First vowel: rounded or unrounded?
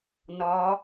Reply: rounded